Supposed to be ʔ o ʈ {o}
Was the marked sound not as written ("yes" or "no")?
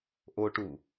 yes